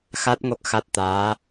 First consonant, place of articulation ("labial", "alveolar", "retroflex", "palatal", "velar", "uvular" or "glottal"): velar